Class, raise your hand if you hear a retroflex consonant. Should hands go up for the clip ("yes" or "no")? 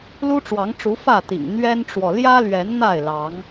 yes